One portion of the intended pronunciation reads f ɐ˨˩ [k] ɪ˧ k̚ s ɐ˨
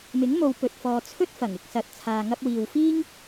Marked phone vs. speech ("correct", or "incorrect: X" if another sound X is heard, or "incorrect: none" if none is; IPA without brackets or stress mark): incorrect: ŋ